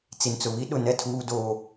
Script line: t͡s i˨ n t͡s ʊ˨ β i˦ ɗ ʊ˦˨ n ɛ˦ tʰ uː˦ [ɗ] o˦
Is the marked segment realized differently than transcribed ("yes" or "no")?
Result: yes